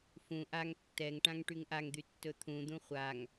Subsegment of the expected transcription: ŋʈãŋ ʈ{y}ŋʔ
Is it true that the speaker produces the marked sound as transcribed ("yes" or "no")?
yes